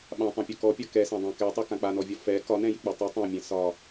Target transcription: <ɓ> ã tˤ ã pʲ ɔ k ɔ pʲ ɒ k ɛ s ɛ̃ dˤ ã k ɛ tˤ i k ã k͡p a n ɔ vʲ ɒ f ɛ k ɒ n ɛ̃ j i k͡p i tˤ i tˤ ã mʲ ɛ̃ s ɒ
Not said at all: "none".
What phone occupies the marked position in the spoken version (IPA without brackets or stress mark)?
ɓ